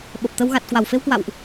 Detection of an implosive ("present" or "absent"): present